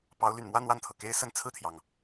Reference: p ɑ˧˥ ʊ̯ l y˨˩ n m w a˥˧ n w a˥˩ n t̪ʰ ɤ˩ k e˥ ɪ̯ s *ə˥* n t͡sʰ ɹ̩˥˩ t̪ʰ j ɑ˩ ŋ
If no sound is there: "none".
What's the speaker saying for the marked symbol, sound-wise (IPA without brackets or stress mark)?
ə˥˧